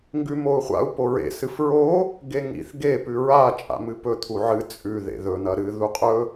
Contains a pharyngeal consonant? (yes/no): yes